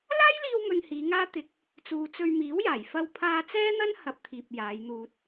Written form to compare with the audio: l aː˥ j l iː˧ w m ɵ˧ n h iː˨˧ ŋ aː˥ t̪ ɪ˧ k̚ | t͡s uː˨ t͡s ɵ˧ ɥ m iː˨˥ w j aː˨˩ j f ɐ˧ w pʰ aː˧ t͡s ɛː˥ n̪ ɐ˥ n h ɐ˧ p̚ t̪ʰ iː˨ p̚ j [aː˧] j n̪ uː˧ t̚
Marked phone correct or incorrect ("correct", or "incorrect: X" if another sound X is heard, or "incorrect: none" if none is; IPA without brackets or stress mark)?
incorrect: aː˨˧